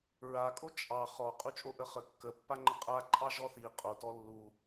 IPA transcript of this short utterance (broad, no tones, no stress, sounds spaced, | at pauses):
ɹ a kʼ o t͡ʃʼ ɑ χ ɔ qʼ u t͡ʃʼ o ʔ ə χ ə kː ə pː a ŋ͡ǃ ə qʼ a ǃʼ ɑ ʒ ɔ θ i qʼ o t ɔ lː u